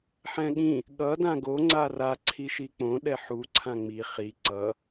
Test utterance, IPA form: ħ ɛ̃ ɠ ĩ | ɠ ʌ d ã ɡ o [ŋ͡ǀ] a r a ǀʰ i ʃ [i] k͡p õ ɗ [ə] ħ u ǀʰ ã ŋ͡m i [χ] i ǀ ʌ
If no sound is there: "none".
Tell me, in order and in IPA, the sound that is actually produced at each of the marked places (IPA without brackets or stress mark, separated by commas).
ŋ͡ǀ, i, ɛ, χ